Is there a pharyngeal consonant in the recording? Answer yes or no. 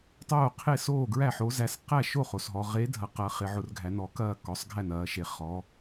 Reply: yes